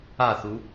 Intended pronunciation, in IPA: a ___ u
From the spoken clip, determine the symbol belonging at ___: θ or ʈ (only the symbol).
θ